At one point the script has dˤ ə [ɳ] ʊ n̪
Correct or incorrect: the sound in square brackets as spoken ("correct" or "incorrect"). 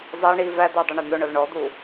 correct